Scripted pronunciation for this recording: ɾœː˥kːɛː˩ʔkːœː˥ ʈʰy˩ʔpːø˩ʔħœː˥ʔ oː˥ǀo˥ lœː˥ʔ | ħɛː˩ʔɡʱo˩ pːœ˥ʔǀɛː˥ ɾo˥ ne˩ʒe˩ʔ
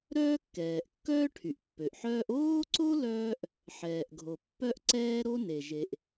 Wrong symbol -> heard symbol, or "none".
none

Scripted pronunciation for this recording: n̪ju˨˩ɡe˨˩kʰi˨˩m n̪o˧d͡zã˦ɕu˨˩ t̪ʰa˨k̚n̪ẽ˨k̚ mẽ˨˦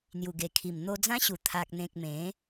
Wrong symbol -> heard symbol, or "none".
none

